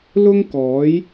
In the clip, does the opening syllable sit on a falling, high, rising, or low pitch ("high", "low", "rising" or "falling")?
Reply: high